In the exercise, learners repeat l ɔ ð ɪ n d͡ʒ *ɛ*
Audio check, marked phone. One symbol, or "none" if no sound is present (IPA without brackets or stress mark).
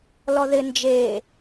e